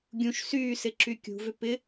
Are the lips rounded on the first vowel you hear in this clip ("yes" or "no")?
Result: yes